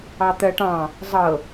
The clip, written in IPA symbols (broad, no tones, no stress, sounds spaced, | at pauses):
ɑ t̪ ɜ ʈ ɑ̃ | zˤ ɤ